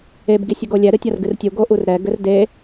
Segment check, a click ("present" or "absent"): absent